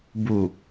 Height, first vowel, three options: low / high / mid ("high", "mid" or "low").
high